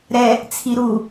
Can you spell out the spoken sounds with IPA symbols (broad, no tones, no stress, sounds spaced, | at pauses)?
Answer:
ɾ ɛ | t͡sʰ i ɾ u